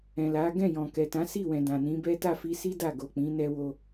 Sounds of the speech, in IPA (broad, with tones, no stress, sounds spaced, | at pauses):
ɛ̃˨ l a˨˦ ɡ ɛ̃˦˨ j ɔ̃˨ k ɛ˨ t ã˨˦ s i˦˨ w ɛ̃˨ d ã˨ n ĩ˨˦ b ɛ˦ t a˦˨ f i˧ s i˦ d a˦˨ ɡ o˨ k͡p ĩ˨˦ n ɛ˦ w o˦